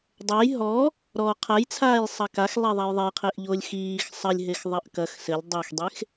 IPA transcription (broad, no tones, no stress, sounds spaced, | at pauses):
dˤ ɐ j ɦ ɔ | ɾ ɔ qʰ a j t͡sʰ aː j sˤ ɐ k a x lˠ ɛ ðˤ a j ðˤ e j qʰ e ʔ ʎ o lʲ x iː x sˤ ɐ lʲ ɦ e x ðˤ ɐ ʔ k ɐ x s ɘ lʲ dˤ e x dˤ e x